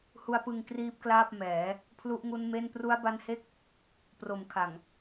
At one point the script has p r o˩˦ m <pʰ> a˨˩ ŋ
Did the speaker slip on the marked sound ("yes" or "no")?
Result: yes